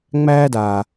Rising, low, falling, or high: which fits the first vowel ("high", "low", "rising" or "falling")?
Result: high